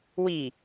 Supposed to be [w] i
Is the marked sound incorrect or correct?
correct